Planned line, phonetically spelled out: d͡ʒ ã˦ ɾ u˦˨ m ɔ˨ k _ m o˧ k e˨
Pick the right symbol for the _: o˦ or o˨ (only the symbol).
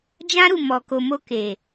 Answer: o˨